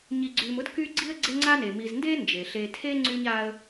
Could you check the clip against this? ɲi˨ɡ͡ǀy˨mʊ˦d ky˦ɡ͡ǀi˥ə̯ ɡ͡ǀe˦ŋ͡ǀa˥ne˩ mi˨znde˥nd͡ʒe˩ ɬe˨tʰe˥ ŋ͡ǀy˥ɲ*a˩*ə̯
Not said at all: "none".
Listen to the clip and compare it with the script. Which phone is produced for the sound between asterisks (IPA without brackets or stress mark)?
a˥